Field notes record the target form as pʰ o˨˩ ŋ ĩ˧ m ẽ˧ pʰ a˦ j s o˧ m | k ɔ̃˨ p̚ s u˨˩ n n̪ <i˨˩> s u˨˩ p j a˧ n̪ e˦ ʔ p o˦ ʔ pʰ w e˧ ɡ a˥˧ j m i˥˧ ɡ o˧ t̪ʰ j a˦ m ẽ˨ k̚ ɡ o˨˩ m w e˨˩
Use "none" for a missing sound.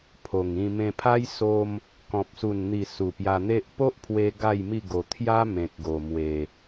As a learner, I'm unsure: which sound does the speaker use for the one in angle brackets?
i˨˩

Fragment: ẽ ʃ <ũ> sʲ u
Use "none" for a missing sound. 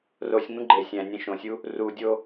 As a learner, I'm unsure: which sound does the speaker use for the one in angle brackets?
õ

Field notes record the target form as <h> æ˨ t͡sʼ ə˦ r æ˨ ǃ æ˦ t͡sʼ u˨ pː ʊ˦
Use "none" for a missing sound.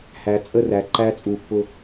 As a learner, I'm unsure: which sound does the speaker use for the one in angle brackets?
h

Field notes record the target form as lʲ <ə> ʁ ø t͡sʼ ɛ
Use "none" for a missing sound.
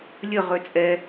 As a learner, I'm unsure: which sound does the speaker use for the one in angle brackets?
ə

